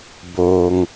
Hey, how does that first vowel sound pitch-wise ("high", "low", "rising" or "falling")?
low